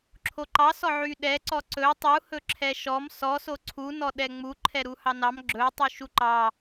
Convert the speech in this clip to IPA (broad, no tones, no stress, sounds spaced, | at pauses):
ǁʰ o ǃ ɑ s ɔ ʕ y ɗ ɛ ǀ ɔ ǀ ɵ tˤ u h ɵ ǁʰ ɛ ʃ ɔ m s ɔ s o ǀʰ u n ɔ ɗ ɛ ŋ͡m u ǃʰ ɛ ɾ u h ɑ n ɑ m ɡ͡ǁ ɵ tˤ y ʃ u ǃ ɑ